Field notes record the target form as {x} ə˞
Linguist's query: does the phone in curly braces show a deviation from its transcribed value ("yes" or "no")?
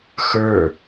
no